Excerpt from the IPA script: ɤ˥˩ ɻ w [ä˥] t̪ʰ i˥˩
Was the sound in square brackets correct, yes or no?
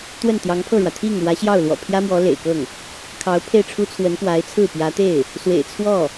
no